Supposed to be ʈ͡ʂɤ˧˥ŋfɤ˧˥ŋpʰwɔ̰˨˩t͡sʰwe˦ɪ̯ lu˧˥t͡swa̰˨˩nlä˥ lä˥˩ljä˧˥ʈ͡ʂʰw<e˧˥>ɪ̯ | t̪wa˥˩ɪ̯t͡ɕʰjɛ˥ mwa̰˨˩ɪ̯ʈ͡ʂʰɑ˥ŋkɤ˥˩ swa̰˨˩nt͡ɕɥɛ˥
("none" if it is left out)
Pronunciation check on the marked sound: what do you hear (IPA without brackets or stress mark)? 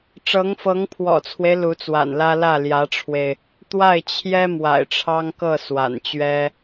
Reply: e˧